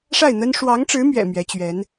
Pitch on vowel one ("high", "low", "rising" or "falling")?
falling